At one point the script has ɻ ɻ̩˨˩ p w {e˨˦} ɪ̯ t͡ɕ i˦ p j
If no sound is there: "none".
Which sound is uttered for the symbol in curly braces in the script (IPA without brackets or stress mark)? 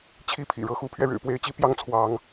e˨˦